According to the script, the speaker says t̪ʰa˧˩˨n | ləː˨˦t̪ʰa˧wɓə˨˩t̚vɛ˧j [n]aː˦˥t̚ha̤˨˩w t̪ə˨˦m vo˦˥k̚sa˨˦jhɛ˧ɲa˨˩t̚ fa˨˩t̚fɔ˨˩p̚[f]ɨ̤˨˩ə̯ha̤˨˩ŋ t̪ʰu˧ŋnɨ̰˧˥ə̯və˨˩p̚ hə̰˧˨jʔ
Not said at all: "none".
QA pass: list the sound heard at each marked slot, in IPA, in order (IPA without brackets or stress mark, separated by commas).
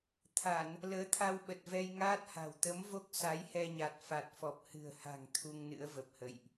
ŋ, h